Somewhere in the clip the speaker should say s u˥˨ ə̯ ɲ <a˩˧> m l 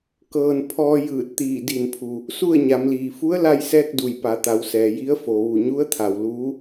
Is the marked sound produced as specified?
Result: yes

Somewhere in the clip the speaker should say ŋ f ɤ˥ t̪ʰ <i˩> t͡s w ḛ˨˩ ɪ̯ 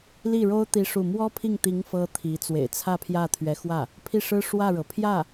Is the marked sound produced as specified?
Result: no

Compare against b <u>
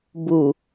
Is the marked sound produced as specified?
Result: yes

